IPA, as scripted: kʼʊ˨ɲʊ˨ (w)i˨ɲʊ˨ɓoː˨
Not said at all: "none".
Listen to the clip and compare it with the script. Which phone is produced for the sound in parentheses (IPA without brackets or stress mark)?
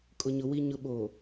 w